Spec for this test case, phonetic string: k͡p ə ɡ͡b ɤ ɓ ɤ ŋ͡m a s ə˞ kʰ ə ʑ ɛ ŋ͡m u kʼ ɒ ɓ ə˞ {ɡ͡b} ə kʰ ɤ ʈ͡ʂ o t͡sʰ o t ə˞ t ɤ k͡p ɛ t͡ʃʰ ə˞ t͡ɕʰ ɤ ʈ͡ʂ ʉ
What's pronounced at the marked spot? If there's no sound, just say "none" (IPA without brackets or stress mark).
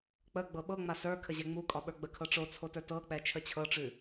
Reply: ɡ͡b